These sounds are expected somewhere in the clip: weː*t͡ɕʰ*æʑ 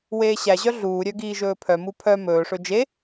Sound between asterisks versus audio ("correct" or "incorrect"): incorrect